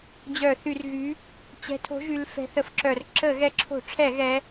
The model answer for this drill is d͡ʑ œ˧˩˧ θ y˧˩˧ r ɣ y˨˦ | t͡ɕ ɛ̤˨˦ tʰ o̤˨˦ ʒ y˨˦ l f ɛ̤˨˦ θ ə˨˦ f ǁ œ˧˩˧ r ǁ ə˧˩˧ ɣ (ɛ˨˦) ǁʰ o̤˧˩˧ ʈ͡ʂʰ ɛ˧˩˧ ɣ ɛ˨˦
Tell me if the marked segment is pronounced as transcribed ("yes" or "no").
yes